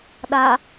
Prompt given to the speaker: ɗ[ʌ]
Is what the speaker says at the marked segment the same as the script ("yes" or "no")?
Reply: no